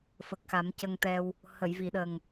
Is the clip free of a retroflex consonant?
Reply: yes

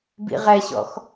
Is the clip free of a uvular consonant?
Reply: no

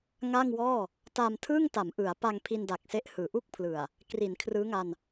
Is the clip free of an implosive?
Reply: yes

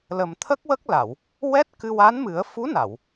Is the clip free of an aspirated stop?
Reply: no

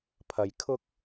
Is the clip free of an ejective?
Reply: yes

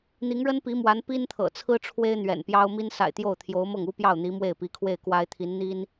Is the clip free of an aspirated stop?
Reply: no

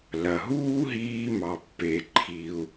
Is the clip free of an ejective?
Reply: yes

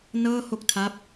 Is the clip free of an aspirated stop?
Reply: no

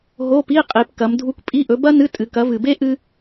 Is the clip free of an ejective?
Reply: no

